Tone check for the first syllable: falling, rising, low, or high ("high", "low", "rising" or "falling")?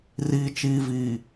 low